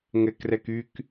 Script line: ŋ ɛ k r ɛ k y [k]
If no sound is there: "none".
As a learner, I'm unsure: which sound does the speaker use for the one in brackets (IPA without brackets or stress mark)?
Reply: k